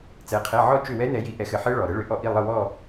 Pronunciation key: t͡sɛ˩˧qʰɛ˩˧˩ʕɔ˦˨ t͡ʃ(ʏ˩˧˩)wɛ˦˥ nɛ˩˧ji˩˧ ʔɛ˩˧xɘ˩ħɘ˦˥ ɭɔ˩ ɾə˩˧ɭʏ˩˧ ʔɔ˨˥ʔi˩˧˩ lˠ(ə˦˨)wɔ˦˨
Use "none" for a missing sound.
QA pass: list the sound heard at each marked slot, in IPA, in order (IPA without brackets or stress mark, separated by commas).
ʏ˦˨, ə˦˨